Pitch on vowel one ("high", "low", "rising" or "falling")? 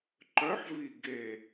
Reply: rising